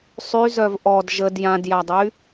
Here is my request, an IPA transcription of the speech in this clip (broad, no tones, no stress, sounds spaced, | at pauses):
sˤ y z œ v ʔ ɔ d ʒ ə d j ã d j a dˤ y